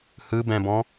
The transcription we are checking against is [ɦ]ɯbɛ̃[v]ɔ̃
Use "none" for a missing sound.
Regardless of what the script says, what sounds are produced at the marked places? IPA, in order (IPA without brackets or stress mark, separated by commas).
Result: h, b